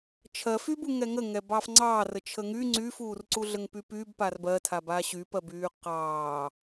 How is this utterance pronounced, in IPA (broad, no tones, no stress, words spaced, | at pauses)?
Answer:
t͡ʃʰɜfybu ŋɛŋə ŋɛbɑːfŋ͡ǀɑːr ət͡ʃʰəŋy ŋ͡ǀyːfuːrǀuɮəŋ pypyb parbɜtʰaba ɕypɜbyː qɑː